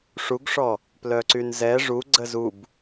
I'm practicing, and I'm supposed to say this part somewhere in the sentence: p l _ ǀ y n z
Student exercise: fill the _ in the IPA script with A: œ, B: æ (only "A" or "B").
A